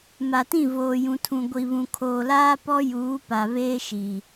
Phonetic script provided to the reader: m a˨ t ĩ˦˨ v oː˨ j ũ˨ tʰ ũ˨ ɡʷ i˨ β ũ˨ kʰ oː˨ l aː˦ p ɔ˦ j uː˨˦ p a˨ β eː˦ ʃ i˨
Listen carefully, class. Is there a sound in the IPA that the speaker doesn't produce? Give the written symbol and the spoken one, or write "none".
none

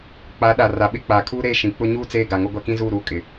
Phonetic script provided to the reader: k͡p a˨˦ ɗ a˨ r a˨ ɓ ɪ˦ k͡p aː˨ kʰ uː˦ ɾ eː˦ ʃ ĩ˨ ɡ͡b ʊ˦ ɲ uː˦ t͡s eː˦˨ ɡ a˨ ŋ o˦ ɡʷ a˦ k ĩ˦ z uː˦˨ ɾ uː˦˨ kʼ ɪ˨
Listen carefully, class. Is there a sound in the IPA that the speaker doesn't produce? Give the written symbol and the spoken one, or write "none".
ɡ͡b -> k͡p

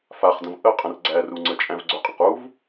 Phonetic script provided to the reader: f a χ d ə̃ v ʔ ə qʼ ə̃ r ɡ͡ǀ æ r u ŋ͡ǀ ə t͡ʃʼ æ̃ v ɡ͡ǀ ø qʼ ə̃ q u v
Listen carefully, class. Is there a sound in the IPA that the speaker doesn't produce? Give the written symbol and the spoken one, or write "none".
none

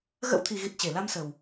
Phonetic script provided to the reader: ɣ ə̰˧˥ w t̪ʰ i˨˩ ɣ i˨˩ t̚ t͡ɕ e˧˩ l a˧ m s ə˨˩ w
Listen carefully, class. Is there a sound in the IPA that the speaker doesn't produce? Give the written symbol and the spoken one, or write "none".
none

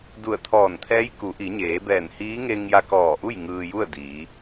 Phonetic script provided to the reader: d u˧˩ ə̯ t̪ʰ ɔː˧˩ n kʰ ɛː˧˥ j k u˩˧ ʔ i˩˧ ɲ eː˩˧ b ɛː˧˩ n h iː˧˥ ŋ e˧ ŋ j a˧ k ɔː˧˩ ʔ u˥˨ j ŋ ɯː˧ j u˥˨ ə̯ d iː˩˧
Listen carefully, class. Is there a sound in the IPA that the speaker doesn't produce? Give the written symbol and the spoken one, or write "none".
kʰ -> t̪ʰ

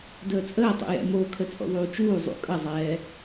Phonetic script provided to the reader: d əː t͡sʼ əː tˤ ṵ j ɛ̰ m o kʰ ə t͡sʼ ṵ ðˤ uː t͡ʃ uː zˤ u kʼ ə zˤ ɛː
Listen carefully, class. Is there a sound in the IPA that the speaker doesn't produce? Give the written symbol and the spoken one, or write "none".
u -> ṵ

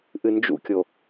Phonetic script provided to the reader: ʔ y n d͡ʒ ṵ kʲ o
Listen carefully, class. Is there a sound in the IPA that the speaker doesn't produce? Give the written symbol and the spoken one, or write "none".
y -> ɨ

